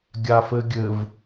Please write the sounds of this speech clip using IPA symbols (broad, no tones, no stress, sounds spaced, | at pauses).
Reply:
ɡʲ a f ɘ ɡʲ ɘ v